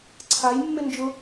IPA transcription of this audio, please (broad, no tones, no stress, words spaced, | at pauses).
ǀʰajmːɪ nd͡ʒʊ